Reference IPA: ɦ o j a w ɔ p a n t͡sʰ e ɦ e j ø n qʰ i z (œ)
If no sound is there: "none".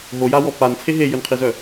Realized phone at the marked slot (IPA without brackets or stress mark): œ